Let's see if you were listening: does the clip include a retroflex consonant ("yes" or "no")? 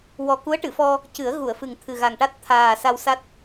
yes